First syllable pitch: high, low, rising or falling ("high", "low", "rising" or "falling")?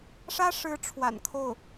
high